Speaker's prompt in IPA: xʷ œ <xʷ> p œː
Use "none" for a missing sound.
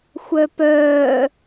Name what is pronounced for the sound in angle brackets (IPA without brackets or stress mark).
none